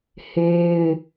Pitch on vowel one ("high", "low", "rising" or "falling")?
high